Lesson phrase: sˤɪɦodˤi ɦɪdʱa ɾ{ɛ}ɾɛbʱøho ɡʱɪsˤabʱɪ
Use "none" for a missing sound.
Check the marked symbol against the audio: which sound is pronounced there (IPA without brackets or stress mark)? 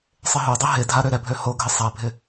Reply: ø